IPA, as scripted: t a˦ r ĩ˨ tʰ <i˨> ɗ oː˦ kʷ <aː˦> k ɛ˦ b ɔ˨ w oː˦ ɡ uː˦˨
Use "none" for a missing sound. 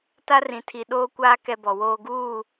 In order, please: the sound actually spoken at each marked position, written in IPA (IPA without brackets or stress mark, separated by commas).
i˨, aː˦